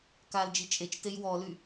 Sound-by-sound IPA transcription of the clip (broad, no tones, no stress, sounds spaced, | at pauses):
k a l d͡ʒ i t͡ʃʼ e t͡ʃ t e j w ɔ l y